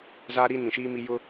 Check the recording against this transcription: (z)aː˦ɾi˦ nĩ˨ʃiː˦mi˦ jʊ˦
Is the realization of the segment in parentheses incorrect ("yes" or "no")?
no